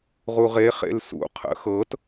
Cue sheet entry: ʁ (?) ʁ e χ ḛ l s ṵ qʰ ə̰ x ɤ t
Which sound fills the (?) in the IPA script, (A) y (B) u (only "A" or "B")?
B